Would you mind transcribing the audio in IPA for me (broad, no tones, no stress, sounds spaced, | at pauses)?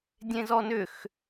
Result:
dʲ ẽ z ɔ n ʏ x